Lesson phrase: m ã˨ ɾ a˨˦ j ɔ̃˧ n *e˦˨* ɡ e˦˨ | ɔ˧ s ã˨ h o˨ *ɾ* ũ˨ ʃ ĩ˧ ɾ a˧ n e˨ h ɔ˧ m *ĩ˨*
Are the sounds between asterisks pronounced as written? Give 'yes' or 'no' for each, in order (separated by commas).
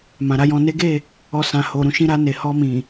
no, yes, yes